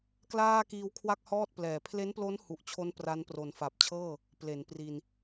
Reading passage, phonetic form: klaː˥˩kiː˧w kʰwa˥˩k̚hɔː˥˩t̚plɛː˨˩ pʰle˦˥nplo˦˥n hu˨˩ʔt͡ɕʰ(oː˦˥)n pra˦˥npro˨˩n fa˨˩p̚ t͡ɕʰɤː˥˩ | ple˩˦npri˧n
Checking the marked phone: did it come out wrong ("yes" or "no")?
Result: yes